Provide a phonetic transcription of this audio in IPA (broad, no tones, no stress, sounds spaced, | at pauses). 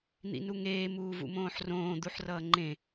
n̪ ḭ n u ŋ eː m uː v ṵ m õː ħ r õː d̪ u ħ r ʌː ŋ͡ǃ ẽ